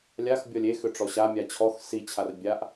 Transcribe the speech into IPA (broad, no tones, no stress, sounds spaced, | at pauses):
lʲ a x bʲ ɔ lʲ e x ʏ ʈ͡ʂ ɔ ɕ a mʲ a t͡ɕʰ ɔ x s i t͡ɕʰ a r bʲ a ʔ